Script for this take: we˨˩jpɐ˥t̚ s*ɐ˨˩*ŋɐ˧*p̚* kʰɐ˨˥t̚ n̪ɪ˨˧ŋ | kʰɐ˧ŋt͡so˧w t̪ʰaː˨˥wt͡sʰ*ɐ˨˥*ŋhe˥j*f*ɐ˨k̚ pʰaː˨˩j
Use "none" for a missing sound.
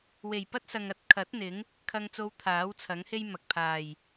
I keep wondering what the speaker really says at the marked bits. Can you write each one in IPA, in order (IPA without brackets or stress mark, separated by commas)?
ɐ˨, t̚, ɐ˨˥, m